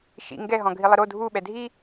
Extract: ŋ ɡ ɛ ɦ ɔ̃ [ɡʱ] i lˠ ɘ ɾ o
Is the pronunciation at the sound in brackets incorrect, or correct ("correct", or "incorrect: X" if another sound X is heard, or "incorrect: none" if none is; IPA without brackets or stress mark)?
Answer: correct